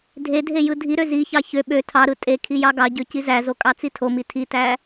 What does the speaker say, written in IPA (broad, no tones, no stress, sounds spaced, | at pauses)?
dʱ e dʱ e j ɯ dʱ i ɾ ø z i ç ɑ ç ø ɓ ø tʰ ɑ ɾ ɯ tʼ e kʰ i j ɑ ɡ ɑ ɟ ø c i z æ z o kʼ ɑ t͡s i tʰ o m i tʰ i t æ